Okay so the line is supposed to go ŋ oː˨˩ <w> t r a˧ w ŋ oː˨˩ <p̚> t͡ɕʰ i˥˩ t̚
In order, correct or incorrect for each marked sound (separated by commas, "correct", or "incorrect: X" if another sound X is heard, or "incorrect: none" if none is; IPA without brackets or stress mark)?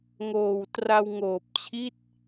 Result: correct, correct